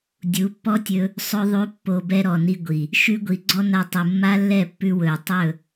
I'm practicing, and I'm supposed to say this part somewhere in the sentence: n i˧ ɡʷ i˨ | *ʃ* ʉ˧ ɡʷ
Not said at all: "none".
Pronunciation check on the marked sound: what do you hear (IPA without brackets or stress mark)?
ʃ